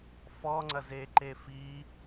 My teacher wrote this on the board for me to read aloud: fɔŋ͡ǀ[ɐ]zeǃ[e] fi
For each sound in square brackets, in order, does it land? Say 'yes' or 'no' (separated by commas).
yes, yes